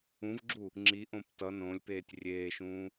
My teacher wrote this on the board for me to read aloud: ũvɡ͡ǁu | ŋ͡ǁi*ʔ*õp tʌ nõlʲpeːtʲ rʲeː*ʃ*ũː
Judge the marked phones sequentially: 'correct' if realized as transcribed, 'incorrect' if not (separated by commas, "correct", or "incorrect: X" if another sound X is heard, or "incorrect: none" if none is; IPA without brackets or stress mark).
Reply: correct, correct